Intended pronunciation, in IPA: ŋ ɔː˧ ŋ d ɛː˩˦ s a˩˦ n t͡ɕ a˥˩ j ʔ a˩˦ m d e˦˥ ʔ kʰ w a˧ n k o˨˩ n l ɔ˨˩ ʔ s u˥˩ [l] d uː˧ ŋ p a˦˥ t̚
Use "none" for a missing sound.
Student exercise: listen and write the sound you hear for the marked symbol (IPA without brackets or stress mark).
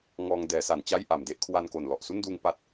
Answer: n